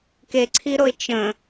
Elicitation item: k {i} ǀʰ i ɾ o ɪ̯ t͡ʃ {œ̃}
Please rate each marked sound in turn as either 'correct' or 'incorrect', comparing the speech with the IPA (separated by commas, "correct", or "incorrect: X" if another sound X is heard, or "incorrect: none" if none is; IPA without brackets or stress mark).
incorrect: e, incorrect: ə̃